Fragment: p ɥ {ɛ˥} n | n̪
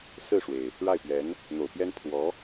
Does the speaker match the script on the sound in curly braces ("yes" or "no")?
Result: no